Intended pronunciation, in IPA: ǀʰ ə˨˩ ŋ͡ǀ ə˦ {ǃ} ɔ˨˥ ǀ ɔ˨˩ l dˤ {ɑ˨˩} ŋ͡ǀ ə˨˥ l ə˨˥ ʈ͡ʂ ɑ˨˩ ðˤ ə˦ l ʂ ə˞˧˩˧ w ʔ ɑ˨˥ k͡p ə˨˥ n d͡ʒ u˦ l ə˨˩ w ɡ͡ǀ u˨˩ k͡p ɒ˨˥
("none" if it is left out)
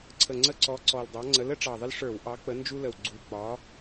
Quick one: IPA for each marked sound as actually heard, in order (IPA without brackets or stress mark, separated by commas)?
ǀ, ɑ˨˥